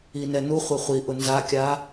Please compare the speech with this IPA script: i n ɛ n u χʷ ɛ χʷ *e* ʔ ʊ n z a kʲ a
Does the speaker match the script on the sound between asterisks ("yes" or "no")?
no